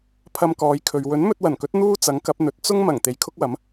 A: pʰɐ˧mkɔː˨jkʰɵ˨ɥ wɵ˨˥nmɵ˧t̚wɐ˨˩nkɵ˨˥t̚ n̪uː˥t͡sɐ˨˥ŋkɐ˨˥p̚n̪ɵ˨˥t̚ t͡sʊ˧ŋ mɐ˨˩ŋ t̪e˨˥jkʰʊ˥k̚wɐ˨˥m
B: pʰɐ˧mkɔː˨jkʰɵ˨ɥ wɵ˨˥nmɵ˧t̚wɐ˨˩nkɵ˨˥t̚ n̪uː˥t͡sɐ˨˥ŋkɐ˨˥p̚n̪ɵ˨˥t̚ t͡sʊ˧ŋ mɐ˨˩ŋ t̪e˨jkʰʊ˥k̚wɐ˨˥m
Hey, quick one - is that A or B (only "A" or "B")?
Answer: B